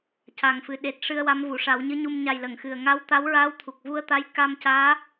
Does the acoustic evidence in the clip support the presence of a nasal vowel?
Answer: no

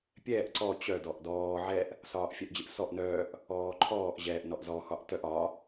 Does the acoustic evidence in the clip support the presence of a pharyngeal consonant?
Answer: yes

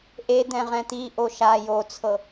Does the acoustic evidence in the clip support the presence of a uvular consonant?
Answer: yes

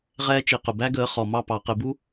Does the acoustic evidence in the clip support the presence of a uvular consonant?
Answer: yes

